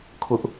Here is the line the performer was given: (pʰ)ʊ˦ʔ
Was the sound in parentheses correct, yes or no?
no